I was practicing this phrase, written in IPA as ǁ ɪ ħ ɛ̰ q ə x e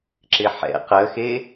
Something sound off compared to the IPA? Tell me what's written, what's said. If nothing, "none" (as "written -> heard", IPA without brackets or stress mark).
none